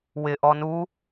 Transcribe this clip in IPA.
wɪʔɔ nu

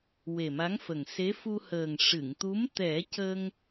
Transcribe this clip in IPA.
we˨˩ma˧˥ŋfə˨˩ŋ se˧˥fu˧həː˨˩ŋ ʂɨ˨˩˨ŋt̪u˧˥m t̪ɛ˨˩˦cə˧ŋ

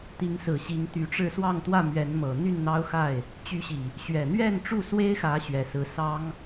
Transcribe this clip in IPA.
t̪i˨˦ŋsɹ̩˨˩ ɕi˨˦ŋt̪y˨˦ʈ͡ʂɻ̩˥˨ swɑ˥˨ŋt̪wä˥˨ mɥɛ˨˦nmɤ˨˩ n̪y˥˨nn̪ɑ˦ʊ̯xa˥˨ɪ̯ | t͡ɕy˨˦ɕi˨˩ | ɕɥɛ˨˩n̪ɥɛ˥˨nʈ͡ʂu˥˨ swe˦ɪ̯xä˨˦ ɕɥɛ˨˩sɹ̩˨˦ sɑ˦ŋ

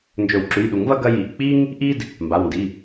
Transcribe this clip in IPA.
nd͡ʒɵ˨˩˦wǁʉ˩˧˩jɗu˨˩˦ŋvɐ˦ ɡɐ˦ji˩˧˩ʔ k͡pi˦ŋ | ʔi˦d | mba˩˧˩wndi˩˧˩

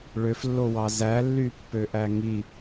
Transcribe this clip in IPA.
ɭøflːowɑ zælːypːøʔæ ŋi

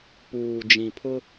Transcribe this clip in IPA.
puː˨ d͡ʒĩ˨pʰʊ˦

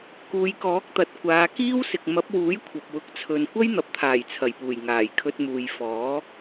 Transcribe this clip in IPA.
kuː˨˧jkɔː˨˥k̚t̪ɐ˨t̚ kʷaː˨˧ kiː˥wsɪ˨k̚ mɐ˨˥p̚wuː˨˥j kʷʰɐ˨p̚wʊ˨˥k̚t͡sʰɵ˨n kʷɐ˥jn̪ɐ˨p̚t̪ʰaː˨˩j t͡sʰɐ˨˩jpuː˨˩j ŋaː˨˩jkʰɵ˧t̚ muː˨jfɔː˨˥

